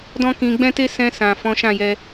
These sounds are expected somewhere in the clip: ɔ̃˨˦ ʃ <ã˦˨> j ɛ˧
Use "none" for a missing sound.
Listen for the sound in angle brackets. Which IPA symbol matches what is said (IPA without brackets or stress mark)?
ã˦˨